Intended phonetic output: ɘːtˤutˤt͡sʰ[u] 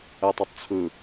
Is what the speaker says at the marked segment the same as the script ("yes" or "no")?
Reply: no